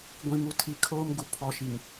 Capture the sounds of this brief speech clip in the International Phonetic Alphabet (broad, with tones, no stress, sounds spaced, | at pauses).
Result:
ɡʷ ĩ˨ m u˨ tʰ i˨ kʰ oː˦ m ɡ u˨ pʰ ɔ˨ ʃ i˨ ŋ